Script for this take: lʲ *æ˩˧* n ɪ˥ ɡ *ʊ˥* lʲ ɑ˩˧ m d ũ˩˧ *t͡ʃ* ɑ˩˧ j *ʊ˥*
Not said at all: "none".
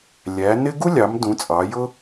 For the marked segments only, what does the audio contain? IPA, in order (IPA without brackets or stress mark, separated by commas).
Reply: æ˩˧, u˥, t͡sʼ, ʊ˥